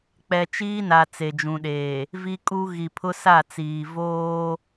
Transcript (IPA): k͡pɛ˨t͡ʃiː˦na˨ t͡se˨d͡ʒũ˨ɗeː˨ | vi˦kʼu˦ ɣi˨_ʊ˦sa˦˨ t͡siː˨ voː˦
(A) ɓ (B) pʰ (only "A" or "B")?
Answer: B